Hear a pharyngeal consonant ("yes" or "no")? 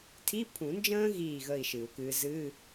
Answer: no